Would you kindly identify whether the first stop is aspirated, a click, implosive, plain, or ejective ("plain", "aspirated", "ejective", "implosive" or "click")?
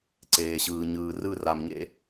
click